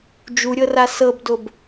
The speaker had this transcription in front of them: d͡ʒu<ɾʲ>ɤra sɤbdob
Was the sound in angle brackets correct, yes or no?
yes